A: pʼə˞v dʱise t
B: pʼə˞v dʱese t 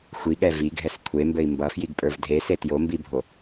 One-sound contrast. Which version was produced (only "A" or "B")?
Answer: B